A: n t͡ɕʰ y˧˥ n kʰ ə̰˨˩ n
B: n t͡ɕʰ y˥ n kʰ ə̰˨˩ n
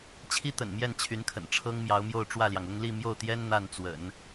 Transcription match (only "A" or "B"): A